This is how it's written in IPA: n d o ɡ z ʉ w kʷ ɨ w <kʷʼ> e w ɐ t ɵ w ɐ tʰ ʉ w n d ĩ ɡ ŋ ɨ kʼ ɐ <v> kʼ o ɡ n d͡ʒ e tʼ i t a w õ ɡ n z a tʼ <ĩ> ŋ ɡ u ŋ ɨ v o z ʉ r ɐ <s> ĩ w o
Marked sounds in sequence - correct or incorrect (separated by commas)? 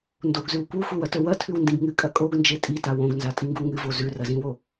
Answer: incorrect, incorrect, incorrect, incorrect